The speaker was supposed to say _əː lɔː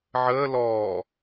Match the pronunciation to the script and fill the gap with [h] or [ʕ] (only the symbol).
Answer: ʕ